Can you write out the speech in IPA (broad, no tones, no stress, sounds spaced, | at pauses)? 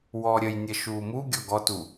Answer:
w ɔ ɾʲ ə j nʲ ə ʃ uː m u ɡʲ ɔ ɡ ɔ t u